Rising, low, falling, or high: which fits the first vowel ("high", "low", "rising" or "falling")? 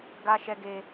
high